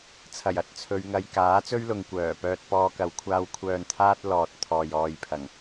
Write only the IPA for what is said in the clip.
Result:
t͡sʰɐ˨˩jɐ˨t̚ t͡sʰɵ˨˧ɥŋɐ˧j kaː˨˥t͡sɵ˥ɥlʊ˨ŋ kʷœː˨˩pœː˧t̚ pɔː˧kɐ˨˧wkʷʰaː˧w kʷʰœː˨nt̪ʰaː˧t̚ lɔː˨t̚ t̪ʰɔː˨jɔː˨jpʰɐ˨˩ŋ

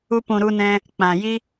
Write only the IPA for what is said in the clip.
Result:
u˧pũ˨ɾu˧nɛ̃˧ | k͡pã˨ji˦

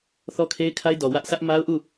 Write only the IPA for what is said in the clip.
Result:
θɔ˦kʰe˦ɪ̯kʰa˦ɪ̯dɔ˨ wä˦ʔ sä˦ʔ ma˦ʊ̯ʔu˦˨

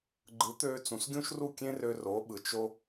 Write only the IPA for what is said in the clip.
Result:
ɡ͡ǃɯ˩˥ t̪øː˧ t͡sũ˩sɡʲũ˥ʃru˥˩ kʲẽ˥rø˧ ro˩˥ɓɯ˩ t͡ʃo˥

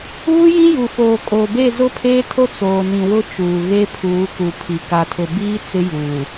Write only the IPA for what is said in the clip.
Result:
uː˦jĩ˦ju˨foː˨ kʼo˨ be˦˨zʊ˦pʰeː˦tʰo˦ t͡soː˨nĩ˨wʊ˦ t͡ʃuː˨ ɣe˦pʰuː˨˦ku˨pʰi˨ ka˨tʰʊ˨biː˦ t͡sɪ˦juː˨

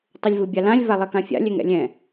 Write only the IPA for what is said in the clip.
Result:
tˤʊlʲvɯbʲalãlʲ valˠɛkãfʲa̰ lʲɛŋɛ̰lʲɛ̃

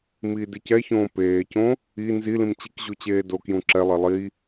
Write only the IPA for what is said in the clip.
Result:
miːdicɛçõː peːcõ | i nzilĩm t͡ɕikʑu t͡ɕeːdokjũ ǁɛlˠɛ lˠi

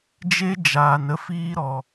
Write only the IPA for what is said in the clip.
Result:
d͡ʒe˦ d͡ʒaː˧nə˦ fiː˦ɾɔ˧

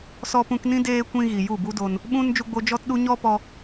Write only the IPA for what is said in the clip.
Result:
sɔ˧pũ˧knĩ˦ deː˦ kʷĩ˧ ɣi˨ju˦˨bu˦do˧n | ɓũ˦n d͡ʒu˧ɡ͡bo˧ d͡ʒɔ˦tɗu˦ ɲɔ˦pɔ˧

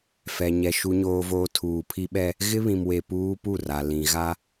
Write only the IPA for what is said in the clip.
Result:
fɛ˨ɲɛ˨ ʃu˨ɲoː˨voː˨ tʰuː˨pʰi˦ɓɛ˦ | ɣɪ˦βĩ˨mwe˨ puː˦pu˦˨ra˨ lĩ˨ ɣa˦

